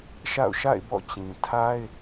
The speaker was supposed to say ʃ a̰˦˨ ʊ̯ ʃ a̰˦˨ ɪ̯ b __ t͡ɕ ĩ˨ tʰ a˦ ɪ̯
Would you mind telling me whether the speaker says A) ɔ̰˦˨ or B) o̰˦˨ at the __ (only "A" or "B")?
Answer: A